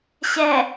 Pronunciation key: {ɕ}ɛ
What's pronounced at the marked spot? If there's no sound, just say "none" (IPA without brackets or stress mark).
ɕ